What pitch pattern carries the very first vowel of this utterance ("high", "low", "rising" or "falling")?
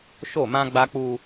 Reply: falling